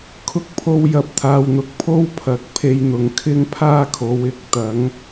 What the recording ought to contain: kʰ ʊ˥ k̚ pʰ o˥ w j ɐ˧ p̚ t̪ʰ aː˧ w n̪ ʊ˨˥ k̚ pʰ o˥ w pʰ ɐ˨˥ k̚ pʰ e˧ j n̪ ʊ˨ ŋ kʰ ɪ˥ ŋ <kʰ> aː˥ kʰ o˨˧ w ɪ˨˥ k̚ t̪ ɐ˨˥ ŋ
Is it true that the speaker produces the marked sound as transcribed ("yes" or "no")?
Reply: no